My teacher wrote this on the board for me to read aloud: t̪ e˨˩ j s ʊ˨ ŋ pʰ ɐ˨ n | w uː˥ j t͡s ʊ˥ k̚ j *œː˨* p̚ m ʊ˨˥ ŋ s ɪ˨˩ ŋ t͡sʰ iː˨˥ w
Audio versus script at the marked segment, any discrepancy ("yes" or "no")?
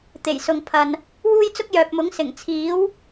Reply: no